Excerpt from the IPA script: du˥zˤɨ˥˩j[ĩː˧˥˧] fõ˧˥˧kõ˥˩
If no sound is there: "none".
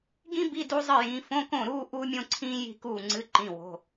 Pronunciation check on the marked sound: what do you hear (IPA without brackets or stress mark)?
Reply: ĩː˨˦